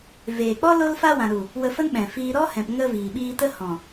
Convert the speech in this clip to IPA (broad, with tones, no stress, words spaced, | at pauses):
veː˨k͡pɔ˦ lo˧lfa˧wã˨ɾu˨ | wə˧fə˦nɓɛ̃˨fiː˧ ɾɔ˦hɛ̃˨pŋə˧ viː˨ɓiː˧tə˦ hɔ̃˨